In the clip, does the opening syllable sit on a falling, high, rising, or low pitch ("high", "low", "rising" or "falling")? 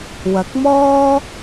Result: rising